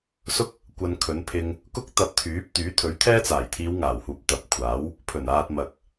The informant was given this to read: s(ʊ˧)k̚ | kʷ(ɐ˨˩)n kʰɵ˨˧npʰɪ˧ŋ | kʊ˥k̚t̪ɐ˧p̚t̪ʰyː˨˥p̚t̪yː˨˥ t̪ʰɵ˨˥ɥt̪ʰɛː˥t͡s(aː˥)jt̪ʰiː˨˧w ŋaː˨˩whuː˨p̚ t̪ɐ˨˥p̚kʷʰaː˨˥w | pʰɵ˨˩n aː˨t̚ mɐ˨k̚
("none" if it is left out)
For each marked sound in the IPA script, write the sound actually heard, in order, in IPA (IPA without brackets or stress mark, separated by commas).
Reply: ʊ˥, ɐ˨, aː˨˩